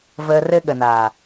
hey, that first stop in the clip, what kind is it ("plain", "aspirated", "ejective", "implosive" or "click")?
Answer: implosive